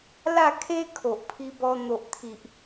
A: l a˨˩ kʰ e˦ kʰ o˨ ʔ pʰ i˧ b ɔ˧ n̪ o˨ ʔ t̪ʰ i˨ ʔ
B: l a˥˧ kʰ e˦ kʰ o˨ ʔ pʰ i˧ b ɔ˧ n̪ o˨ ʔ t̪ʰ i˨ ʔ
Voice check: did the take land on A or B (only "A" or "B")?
B